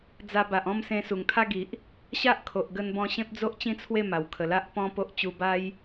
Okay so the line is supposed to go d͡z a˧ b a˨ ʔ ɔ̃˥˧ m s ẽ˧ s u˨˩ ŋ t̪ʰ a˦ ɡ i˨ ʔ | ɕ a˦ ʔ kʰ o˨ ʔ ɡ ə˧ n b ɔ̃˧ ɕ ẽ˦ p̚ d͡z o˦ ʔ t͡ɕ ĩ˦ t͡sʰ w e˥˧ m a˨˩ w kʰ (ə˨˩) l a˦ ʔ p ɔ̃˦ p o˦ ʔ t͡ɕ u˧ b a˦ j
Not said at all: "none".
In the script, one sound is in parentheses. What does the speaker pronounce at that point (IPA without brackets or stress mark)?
ə˨˩